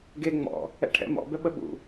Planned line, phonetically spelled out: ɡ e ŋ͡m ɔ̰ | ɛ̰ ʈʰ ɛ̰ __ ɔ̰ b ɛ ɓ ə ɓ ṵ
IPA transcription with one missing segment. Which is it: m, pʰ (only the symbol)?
m